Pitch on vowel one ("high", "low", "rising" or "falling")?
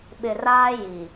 low